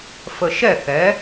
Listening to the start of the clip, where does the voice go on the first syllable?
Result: low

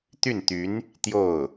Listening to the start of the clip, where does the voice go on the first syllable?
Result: falling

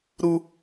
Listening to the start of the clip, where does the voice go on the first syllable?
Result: high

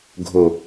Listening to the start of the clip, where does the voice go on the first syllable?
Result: low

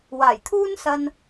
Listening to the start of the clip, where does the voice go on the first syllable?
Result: low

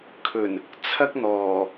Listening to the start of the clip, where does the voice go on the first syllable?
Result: low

